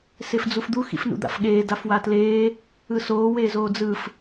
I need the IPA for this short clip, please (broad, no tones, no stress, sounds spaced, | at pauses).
s e f d͡z u f d̪ u x ḭ f n ṵ d̪ a̰ f ɠ eː d a f w a t l eː | ɯ s oː w eː z oː d͡z ɯ f